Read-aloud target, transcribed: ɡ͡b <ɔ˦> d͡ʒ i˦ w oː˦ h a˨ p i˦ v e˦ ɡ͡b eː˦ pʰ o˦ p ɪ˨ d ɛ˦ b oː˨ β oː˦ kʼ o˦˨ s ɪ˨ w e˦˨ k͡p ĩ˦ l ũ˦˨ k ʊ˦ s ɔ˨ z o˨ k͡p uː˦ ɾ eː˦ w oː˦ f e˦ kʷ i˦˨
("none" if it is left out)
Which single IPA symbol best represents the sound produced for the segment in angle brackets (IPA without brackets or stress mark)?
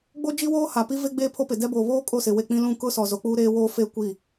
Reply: o˦